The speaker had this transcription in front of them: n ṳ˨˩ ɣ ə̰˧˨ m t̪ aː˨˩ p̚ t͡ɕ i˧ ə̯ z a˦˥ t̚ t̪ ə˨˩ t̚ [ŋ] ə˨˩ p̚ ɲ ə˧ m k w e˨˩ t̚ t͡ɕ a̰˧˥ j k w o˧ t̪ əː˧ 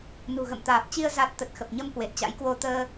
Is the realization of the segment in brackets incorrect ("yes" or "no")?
yes